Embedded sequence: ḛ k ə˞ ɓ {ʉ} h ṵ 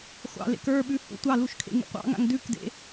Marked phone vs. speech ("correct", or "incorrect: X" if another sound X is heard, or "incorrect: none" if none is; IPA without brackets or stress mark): correct